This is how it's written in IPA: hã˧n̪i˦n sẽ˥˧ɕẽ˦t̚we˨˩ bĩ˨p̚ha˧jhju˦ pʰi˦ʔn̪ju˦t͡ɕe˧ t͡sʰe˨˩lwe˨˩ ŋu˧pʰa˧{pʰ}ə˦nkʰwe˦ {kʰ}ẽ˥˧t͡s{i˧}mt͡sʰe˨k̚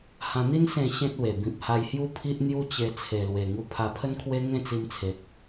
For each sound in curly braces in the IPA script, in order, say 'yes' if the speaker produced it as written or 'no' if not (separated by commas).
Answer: yes, no, yes